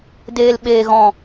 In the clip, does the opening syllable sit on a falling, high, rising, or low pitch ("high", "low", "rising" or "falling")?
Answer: low